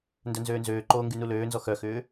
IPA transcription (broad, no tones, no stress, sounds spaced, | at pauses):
n d œ n z øː n z øː ǃ oː ŋ ɡ y n u l øː n z ɔ x œ x ʏː